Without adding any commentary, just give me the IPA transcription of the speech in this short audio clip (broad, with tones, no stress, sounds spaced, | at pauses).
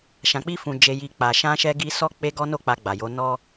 ʃ ã˨ k͡p i˧ f ũ˨ d͡ʒ e˨ j i˨ k͡p a˨ ʃ ã˧ ʃ ɛ˧ ɡ i˧ s ɔ˦ k͡p e˧ ɡ ɔ˧ n o˧ k͡p a˨ ɡ͡b a˨ j o˨˦ n ɔ˦